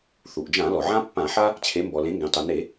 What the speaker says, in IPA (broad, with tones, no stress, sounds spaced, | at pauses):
θ u˩ ʔ d͡ʒ ã˧˩˧ l ɔ˩ ʕ ã˦ pː ã˧˩˧ ħ a˦ | t͡ɕʰ e˩˧ m b ɔ˩ l ẽ˩˧ ŋ ɡ ẽ˩ tˤ u˩ n e˧˩˧